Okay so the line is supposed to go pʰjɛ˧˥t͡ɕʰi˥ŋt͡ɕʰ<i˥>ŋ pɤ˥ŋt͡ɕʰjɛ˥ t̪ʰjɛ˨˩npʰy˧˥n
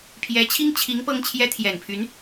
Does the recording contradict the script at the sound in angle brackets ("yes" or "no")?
yes